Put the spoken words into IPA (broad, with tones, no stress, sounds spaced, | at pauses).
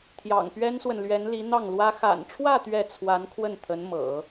t̪ʰ j ɑ̰˨˩ ŋ p ɥ ɛ˥ n s w ə˨ n l ɥ ɛ˧˥ n l i˧˥ n̪ ɑ˥˩ ŋ l w ä˥ x a̰˨˩ n ʈ͡ʂʰ w ä˥˧ t̪ ɥ ɛ˥˩ t͡sʰ w a˧˥ n kʰ w ə˥˩ n t̪ʰ ə˧˥ n m ɤ̰˨˩˦